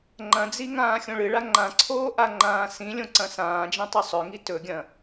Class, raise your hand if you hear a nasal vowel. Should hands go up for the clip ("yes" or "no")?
yes